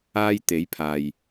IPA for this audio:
aː˧ j t̪ e˨˥ j pʰ aː˨ j

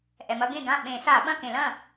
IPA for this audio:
ʔ ɛ˩ m ɐ˦ ɡ ẽ˥˩ ɡ ã˥˩ ɓ ẽ˧˩˧ s a˧˩˧ ɓ ɐ̃˥˩ k ẽ˧˩˧ l ɐ̃˥˩

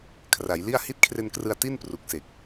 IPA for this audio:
kʰ r a˩˦ j l i˥˩ a̯ h i˦˥ t̚ kʰ r e˧ n k r ɯ˧ a̯ t i˥˩ n p r u˨˩ k̚ s e˨˩ k̚

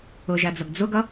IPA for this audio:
ʊ ʒ æ d͡z ʌ ɡ d͡z ʊ ɡ ʌ

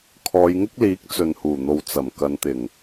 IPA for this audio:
kʰ ɔː˨˧ j ŋ ɪ˥ k̚ l iː˨˥ k̚ t͡s ɵ˨ n h uː˨˩ n̪ o˨ w t͡s ɐ˨˩ m k ɐ˨˧ n t̪ ɪ˨˩ ŋ

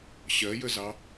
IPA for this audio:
ɕ ɜ j ə z ɑ

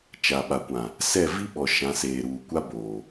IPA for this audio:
t͡ʃ a˨ ɓ a˨ kʷ ã˨ | s ɛ˦˨ v i˦ ɓ ɔ˨ ʃ ã˨˦ s eː˨ ɾ uː˨ kʷ a˦ b oː˨

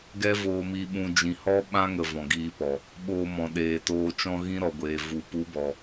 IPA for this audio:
ɡ ɛ˦ v oː˧ m i˧ ɓ ũ˧ d͡ʒ ĩ˨ h ɔ˦ ɓ ã˦ ŋ ə˨ v ɔ̃˨ ɡ iː˧ p ɔ˨ | ɓ oː˧ m ɔ̃˨ ɗ eː˨ t oː˧ t͡ʃ ɔ̃˦ ɣ ĩ˦ ɾ ɔ˨ ɡʷ eː˨ v u˨ p u˨˦ b ɔ˨

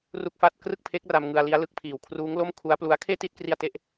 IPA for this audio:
r u˥˩ k̚ f a˥˩ t̚ k r ɯ˥˩ k̚ pʰ e˦˥ k̚ r a˧ m ŋ ɯ˧ a̯ l i˦˥ a̯ l ɯ˦˥ k̚ pʰ iː˨˩ w kʰ r uː˦˥ ŋ l o˥˩ m kʰ u˦˥ a̯ p l u˦˥ a̯ kʰ eː˥˩ t i˥˩ t̚ k r i˧ a̯ t e˥˩ ʔ

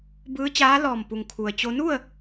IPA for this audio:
b ɯː˧˥ t͡ɕ aː˧˥ l ɔː˧˩ m p u˩ ŋ kʰ u˩ ə̯ t͡ɕ o˧ n u˥˨ ə̯

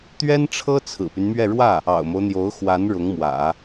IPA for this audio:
t̪ ɥ ɛ˥ n ʈ͡ʂʰ ɤ˥ t͡sʰ ɹ̩˨˩ p y˦ n m ɥ ɛ˥˧ ɻ w ä˥˩ | ɑ̰˨˩ ʊ̯ m o˦ ʊ̯ n̪ j o˧˥ ʊ̯ x w a˧˥ n ɻ ʊ˧˥ ŋ m w ä̰˨˩˦

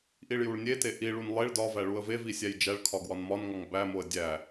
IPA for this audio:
ʔ i ɭ j u ɭ nʲ e t e ʔ i ɭ u n lˠ e ɭ d ɒ v æ ɭ u ə̯ v e v i sʲ æ j d͡ʒ æ ɭ kʰ ɒ ɡ w ɒ n m ɒ n ŋ ɒ ŋ b æ m o ə̯ dʲ æ

